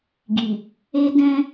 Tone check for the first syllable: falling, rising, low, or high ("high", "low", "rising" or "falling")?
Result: low